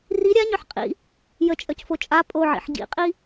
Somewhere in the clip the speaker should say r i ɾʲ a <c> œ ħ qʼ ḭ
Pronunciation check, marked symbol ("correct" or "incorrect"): incorrect